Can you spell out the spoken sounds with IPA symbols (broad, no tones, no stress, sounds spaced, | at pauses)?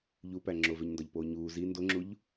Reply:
ʎ u p æ ŋ͡ǁ o v e ɲ n d ɒ ʎ p oː ɲ uː z i n d o ŋ͡ǁ u ʎ